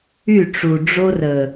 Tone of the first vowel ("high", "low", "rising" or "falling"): falling